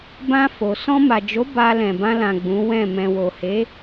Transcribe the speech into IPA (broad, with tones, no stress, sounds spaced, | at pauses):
b ã˧ f o˨ s ɔ̃˧ m a˨ d͡ʒ o˨˦ b a˧ l ɛ̃˨ b ã˧ l ã˨ ɡ͡b ũ˨˦ w ɛ̃˦˨ m ɛ̃˨ w o˨ h e˨˦